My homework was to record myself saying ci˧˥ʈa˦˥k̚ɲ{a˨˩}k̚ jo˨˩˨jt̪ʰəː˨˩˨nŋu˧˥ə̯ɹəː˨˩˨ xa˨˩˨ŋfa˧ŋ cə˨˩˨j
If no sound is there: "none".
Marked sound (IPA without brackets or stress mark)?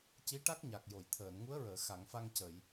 a˨˩